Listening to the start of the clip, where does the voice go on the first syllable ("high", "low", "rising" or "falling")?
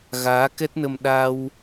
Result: rising